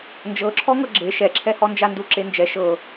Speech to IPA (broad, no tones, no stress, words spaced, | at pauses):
nd͡ʒɤǁʰɔŋɤ ɡ͡ǁe ʃɛǁʰɛhɔ nd͡ʒanduǁend͡ʒɛ ʃɤ